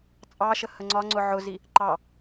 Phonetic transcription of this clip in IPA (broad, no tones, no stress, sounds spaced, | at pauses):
t͡sʼ ɑ ʃ ə h ə ŋ͡ǀ ɒ ŋ͡ǀ ʊ ʕ ʊ z i | ǃ ɑ